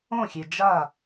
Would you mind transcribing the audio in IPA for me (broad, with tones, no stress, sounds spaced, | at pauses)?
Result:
õ˥˨ xʲ e˧ d͡ʒ a˥˨